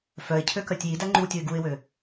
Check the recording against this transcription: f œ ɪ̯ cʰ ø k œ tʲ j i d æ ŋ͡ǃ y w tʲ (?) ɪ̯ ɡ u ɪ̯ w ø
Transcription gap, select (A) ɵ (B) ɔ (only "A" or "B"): A